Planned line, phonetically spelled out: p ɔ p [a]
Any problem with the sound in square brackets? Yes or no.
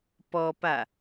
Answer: no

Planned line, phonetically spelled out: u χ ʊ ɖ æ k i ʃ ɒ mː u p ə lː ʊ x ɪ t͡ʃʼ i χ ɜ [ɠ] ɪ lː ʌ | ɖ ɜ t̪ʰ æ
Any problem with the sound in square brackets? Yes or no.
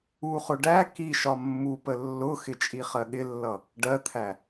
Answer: no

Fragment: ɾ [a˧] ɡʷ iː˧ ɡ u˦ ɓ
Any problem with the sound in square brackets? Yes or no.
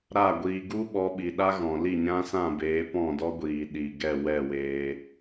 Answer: yes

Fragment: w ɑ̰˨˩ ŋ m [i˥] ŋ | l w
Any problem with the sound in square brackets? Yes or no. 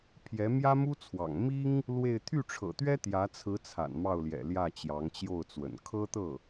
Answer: no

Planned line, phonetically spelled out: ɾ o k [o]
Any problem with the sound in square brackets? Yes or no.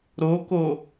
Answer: no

